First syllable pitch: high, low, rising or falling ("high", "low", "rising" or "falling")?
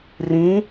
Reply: rising